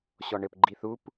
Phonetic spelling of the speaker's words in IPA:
ɕ ɔ ɳ ɘ p ɡ͡ǃ i θ u p

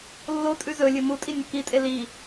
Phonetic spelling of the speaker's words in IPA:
lː o tʼ ʉ z ɵ lʲ ɨ m u tʼ i nʲ ɐ k i tʼ e l i

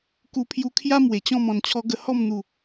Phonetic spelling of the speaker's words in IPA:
k u˧ pʰ j u˧ kʰ j a˦ m w e˨˩ t͡ɕ ɔ̃˥˧ m ɔ̃˨˩ n t͡ɕʰ ɔ˧ ɡ ə˧ h ɔ˥˧ m n̪ u˨˩

